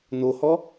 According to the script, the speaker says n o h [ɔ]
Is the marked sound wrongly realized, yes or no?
no